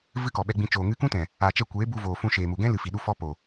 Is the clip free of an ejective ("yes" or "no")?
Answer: yes